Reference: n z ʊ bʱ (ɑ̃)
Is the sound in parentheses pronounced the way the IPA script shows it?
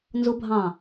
yes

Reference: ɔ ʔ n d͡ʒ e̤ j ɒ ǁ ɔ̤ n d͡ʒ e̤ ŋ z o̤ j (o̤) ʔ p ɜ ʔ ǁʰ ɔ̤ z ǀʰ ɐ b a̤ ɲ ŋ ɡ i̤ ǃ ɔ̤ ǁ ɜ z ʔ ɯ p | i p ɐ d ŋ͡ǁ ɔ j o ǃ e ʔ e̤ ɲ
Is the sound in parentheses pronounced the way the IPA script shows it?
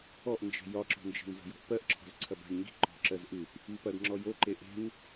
no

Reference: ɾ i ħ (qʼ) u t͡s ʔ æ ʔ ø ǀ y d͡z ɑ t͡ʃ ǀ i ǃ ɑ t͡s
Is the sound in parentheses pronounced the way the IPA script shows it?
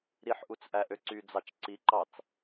no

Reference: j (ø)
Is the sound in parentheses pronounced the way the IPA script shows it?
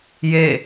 no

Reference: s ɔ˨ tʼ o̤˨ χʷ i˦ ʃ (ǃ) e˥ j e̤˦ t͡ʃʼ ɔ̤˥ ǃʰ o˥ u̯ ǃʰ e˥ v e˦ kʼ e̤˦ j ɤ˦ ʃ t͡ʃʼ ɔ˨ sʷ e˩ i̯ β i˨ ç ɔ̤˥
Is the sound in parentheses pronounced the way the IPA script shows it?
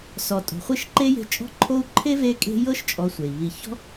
yes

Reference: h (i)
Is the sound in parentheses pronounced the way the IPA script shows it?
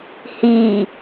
yes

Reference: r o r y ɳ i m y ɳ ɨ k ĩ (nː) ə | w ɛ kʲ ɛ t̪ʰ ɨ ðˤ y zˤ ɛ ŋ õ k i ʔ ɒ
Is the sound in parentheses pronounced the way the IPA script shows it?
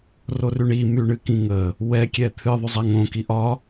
no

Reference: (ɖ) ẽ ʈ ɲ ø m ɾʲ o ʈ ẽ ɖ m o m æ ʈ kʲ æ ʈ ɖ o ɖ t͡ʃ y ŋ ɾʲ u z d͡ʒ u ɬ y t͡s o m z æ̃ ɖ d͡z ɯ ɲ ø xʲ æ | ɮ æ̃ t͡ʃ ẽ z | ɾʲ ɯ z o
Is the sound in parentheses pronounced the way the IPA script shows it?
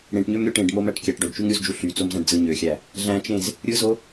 no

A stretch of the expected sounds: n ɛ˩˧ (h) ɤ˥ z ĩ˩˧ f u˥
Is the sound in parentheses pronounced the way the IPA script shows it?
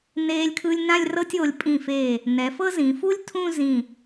no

